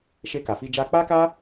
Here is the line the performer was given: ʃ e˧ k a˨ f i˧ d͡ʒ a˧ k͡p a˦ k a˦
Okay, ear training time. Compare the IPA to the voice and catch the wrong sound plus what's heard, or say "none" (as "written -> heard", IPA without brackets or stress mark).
none